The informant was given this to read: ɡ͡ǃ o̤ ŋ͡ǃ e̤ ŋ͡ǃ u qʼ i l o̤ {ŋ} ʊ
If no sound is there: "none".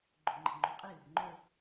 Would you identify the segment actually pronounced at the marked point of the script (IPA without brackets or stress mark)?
ŋ͡ǃ